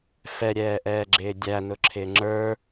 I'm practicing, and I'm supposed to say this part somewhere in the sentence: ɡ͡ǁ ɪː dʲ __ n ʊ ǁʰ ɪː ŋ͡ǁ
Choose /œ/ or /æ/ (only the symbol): æ